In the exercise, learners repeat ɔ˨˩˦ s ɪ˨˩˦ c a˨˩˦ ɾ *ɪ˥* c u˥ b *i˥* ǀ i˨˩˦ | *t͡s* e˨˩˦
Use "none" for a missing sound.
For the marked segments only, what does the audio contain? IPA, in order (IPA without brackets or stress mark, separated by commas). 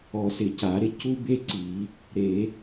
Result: ɪ˥, e˥, ɾ